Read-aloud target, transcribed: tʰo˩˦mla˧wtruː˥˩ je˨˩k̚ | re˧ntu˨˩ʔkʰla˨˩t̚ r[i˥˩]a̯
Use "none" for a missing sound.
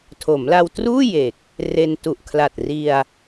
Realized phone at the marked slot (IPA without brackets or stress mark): i˧